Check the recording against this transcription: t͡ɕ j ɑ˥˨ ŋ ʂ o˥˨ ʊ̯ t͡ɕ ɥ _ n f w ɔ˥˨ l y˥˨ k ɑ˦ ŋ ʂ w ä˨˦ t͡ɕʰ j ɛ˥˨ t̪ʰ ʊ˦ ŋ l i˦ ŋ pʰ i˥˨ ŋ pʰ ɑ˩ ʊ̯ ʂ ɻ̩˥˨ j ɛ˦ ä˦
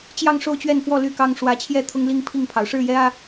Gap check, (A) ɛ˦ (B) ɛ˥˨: B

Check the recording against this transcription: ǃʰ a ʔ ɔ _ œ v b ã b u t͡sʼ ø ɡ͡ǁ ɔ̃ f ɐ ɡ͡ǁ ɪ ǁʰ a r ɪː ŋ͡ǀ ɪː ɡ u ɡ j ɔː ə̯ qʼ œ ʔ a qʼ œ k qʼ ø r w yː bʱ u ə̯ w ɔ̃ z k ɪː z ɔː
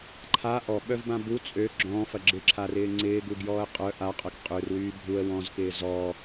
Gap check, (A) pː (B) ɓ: B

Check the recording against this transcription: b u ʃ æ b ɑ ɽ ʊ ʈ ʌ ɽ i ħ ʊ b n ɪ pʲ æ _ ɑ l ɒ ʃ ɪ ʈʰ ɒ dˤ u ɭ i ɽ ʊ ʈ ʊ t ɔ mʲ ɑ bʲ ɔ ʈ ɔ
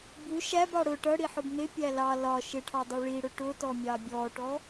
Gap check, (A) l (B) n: A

